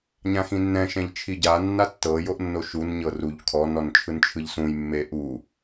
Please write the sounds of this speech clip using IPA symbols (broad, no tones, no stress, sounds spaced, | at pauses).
ɲ ã x ĩ nː ɛ̃ ʃ ɛ̃ ʎ t͡ʃʰ i ɟ a nː a tː ɤ j o ʔ nː o ʃ u n ɲ ɤ r u ʎ kʰ ɔ n ɔ n t͡ʃʰ ɯ n t͡ʃʰ ɯ ʎ s ũ j mː e ʔ u